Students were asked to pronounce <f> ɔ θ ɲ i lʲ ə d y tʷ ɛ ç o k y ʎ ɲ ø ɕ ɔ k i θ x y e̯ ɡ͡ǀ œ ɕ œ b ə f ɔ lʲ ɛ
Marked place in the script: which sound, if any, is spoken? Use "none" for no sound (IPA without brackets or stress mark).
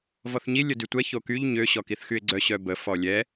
v